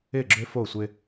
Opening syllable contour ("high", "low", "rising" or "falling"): falling